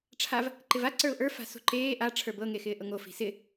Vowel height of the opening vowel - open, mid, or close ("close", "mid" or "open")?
open